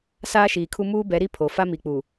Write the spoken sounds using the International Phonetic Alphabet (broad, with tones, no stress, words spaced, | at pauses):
saː˦ʃiː˨kʰu˦ muː˦bɛ˨˦ɾi˦ pʰo˨ fa˦mi˨k͡pu˨